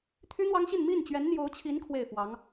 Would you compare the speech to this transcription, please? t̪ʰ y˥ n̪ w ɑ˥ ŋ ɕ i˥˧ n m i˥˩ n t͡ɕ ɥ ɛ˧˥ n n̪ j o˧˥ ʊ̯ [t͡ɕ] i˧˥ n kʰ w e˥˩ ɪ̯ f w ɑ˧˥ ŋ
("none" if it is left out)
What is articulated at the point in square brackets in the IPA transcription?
t͡ɕʰ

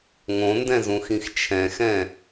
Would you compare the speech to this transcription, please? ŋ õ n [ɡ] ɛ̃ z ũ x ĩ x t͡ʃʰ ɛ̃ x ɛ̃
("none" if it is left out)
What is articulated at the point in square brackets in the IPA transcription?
d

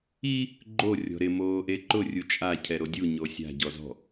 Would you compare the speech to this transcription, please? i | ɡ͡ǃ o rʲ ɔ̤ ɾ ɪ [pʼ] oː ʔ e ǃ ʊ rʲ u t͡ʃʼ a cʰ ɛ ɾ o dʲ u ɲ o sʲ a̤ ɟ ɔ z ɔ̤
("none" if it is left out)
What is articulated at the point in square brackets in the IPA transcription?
m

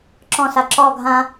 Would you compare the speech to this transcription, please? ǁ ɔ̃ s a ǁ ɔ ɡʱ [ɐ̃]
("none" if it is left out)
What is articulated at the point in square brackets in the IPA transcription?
ã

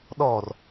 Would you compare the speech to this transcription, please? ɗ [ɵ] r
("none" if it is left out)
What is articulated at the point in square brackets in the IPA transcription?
ɔ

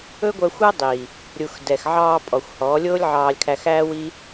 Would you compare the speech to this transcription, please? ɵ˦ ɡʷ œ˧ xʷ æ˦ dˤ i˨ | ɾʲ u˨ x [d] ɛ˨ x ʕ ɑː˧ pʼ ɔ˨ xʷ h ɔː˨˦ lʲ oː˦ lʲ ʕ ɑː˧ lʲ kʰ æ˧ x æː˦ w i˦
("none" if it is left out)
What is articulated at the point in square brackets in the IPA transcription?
d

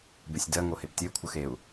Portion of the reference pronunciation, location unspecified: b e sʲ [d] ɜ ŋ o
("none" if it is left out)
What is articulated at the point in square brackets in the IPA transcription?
d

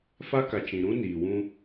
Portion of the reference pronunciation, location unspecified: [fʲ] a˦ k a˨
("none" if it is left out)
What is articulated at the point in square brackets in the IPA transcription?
f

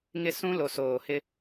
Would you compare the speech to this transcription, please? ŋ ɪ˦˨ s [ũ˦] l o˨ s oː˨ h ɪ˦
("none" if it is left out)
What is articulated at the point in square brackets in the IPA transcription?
ũ˦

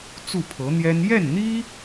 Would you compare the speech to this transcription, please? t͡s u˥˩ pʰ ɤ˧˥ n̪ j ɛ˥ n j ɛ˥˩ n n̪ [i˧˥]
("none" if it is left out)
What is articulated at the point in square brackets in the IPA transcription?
i˥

